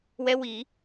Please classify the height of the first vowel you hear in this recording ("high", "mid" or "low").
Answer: mid